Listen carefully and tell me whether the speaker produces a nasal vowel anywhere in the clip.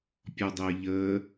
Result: no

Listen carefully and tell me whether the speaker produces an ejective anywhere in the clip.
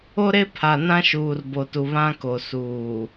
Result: no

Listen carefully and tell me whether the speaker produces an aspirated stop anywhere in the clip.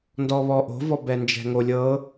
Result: no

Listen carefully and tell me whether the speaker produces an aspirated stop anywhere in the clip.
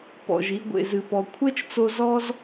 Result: yes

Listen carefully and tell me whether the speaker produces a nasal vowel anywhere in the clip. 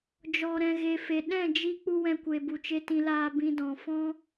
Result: yes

